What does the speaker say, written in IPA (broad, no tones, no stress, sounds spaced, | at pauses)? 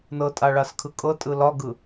n ɤ tʼ a ɭ a s kʰ ɯ kʼ ɤ tʼ ɯ l ɒ ɡ ɯ